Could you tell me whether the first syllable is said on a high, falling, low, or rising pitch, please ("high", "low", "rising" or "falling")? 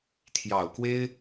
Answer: low